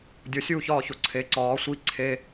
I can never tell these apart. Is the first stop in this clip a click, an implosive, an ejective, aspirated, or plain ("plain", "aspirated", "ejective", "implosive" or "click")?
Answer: plain